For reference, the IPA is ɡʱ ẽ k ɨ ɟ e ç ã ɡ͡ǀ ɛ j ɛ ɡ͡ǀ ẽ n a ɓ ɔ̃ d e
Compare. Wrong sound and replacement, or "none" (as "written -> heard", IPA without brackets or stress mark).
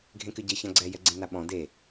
none